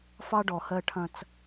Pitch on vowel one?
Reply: high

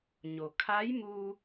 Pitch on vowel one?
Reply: low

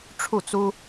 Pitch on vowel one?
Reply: falling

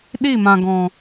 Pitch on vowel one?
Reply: falling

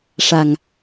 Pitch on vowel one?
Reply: low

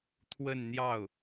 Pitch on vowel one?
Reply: falling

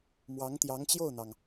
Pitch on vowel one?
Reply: rising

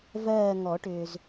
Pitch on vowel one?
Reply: falling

